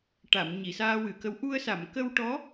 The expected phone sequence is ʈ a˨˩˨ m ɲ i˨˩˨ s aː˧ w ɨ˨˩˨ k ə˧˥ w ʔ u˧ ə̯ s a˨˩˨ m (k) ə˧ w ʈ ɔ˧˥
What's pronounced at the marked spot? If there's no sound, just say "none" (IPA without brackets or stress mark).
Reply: k